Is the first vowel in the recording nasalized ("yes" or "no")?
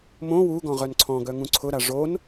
yes